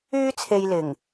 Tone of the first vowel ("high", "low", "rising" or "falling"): high